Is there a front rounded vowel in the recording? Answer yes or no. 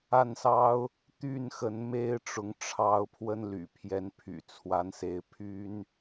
yes